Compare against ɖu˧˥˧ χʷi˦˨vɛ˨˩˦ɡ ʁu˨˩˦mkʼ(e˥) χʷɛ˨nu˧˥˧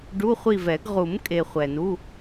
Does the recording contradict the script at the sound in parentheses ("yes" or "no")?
yes